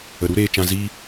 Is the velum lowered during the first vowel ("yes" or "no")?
no